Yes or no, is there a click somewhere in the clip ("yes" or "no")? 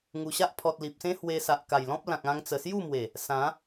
no